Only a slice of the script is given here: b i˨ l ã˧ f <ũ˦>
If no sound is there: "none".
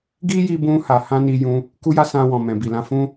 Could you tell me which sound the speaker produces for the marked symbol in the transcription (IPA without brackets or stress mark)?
ũ˦